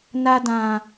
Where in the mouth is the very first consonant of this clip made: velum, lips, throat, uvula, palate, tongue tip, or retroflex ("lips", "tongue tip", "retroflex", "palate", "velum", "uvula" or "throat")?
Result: tongue tip